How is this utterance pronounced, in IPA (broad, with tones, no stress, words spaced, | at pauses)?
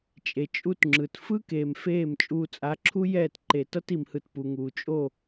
t͡ʃʼe˨t͡ʃʼu˦tŋ͡ǁɯ˨t fɯ˦keː˨m feː˦˨m t͡ʃʼuː˨t͡sʼa˨˦ǁʰu˦ jɛː˦˨tǃe˨ tʌ˦ti˨mhɯ˨t pu˨ŋuː˨ t͡ʃʼo˦˨